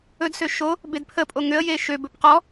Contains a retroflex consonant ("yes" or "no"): no